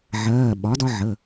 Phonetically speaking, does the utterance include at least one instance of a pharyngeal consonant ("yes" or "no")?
yes